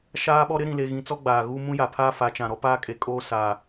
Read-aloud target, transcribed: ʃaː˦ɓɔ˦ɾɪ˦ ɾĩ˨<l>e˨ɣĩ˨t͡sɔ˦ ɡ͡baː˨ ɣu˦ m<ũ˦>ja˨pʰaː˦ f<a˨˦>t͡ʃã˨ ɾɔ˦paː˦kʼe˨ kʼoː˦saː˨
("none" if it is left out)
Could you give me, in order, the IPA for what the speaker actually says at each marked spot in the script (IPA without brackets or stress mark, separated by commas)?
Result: l, ũ˦, a˨˦